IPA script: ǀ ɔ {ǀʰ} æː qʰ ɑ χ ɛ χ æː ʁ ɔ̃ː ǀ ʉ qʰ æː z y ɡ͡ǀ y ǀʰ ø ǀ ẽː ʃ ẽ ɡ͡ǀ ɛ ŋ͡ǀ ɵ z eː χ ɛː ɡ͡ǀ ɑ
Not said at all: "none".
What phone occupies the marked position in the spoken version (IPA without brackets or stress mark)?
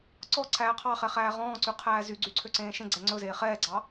ǀʰ